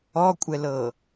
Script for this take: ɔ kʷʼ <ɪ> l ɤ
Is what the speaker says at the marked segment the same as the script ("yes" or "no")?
no